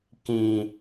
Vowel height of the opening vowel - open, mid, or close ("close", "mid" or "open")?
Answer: close